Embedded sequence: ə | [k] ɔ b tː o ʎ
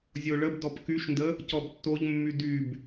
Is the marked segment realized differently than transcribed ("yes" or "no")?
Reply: yes